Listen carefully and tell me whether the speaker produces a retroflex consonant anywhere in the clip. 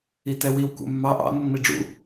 yes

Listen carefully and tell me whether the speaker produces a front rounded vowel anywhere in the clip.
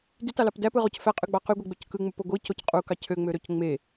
yes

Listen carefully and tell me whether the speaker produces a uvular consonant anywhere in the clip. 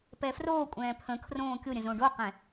yes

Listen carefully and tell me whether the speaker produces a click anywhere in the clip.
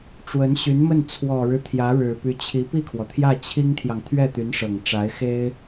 no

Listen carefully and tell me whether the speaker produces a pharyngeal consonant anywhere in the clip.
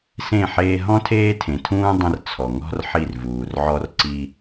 yes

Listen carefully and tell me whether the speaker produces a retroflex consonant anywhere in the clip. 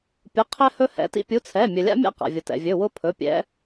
no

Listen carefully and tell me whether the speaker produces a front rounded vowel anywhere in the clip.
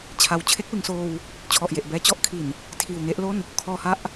no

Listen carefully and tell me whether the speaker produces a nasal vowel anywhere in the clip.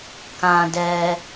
yes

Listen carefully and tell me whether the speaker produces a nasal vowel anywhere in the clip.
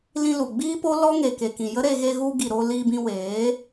yes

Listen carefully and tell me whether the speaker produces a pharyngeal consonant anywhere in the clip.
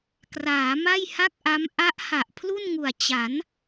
no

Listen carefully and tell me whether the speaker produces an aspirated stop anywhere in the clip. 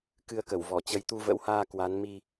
no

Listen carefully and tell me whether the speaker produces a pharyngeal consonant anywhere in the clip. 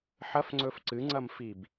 yes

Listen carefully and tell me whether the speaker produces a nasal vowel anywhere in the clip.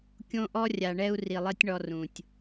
yes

